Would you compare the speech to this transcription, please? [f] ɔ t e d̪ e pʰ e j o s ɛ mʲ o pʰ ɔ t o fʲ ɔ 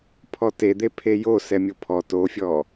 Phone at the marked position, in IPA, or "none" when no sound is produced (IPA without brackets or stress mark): pʰ